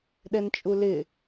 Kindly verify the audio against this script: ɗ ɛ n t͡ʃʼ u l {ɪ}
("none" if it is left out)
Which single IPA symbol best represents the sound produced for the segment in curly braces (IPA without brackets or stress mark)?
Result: ɪ